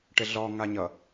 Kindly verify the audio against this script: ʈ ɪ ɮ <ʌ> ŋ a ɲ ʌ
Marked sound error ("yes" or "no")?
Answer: yes